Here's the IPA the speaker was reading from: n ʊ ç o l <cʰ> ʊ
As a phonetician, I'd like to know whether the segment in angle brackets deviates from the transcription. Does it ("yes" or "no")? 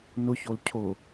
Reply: no